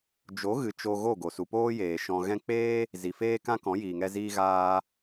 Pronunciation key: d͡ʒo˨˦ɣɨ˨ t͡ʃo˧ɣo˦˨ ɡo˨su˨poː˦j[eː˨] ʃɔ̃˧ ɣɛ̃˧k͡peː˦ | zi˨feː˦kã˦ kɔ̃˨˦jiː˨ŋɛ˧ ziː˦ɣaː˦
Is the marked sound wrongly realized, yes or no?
no